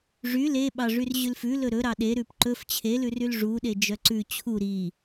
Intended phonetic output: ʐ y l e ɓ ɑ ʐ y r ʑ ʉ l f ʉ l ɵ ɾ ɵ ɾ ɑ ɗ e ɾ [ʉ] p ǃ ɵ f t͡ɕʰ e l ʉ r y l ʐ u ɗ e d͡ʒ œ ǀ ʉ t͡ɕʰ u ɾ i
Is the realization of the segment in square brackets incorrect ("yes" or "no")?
no